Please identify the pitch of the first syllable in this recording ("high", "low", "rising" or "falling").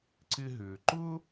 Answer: high